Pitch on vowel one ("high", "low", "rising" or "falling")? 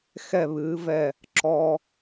falling